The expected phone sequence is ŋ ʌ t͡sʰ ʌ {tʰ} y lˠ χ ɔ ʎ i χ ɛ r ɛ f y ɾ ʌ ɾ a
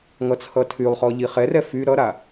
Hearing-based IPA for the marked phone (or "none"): tʰ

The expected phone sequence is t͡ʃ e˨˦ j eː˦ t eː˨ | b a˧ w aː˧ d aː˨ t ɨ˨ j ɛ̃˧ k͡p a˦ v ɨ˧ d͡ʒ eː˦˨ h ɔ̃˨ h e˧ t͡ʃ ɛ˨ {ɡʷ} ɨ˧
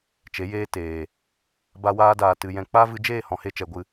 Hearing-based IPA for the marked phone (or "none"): ɡʷ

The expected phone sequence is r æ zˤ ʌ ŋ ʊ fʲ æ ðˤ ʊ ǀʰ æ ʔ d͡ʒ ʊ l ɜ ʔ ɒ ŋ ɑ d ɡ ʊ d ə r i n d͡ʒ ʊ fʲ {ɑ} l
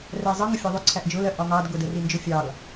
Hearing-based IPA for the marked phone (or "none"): ɑ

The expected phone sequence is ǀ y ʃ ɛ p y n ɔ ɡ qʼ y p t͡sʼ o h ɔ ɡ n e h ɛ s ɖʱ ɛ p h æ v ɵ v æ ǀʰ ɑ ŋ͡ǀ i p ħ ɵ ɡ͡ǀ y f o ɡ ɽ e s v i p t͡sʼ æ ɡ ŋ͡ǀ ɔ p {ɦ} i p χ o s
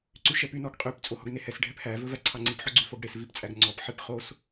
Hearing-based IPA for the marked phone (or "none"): ħ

